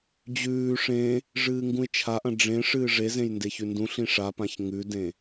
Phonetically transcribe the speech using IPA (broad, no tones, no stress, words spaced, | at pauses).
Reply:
d͡ʑʉː ʂẽ | ʐɨːŋɡũɪ̯t͡ʃʰaʔɐ̃ ɖ͡ʐẽʂɨː ʐezẽj ndeçʉndũɬĩ ʂapãç ŋʉdẽ